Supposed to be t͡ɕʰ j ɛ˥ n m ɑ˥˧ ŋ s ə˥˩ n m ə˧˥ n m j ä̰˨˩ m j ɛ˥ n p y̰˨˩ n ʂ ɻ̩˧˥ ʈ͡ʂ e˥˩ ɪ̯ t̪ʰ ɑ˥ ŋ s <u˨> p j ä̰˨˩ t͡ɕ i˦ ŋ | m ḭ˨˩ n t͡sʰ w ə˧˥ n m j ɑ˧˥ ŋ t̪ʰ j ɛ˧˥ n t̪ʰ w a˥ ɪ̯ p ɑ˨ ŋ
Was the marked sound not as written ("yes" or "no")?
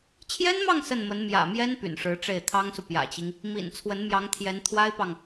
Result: no